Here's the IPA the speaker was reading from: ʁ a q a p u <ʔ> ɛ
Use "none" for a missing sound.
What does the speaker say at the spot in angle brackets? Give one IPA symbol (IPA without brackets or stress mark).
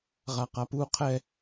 qʰ